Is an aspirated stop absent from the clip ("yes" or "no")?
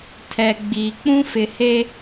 no